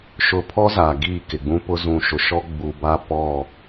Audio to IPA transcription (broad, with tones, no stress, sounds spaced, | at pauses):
ʃ ʊ˨ pʰ ɔ˦ z a˨ ɡ iː˦˨ k ɪ˨ ɡ͡b ũ˦ p ʊ˦ z ũ˨ ʃ ʊ˨ ʃ ɔ˦ ɡ͡b u˨ b a˦ p ɔ˦˨